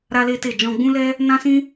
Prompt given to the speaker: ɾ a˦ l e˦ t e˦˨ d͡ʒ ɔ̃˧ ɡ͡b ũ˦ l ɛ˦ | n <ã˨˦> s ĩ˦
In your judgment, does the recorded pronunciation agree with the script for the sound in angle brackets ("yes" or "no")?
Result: no